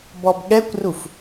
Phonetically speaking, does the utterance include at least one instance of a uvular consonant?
no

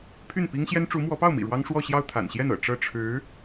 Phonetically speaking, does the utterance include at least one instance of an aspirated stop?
yes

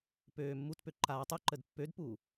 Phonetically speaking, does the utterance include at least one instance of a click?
yes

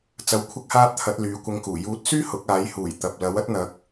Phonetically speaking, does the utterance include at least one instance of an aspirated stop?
yes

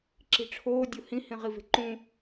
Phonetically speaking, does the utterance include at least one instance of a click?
yes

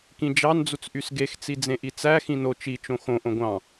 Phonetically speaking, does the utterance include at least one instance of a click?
no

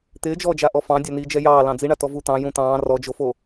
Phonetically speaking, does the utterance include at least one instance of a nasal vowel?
yes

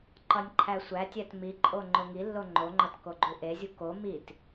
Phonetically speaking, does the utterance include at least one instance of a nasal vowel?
no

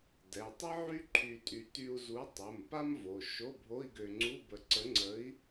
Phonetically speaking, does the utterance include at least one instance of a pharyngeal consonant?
yes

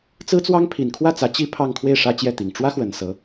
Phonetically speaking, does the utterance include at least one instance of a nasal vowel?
no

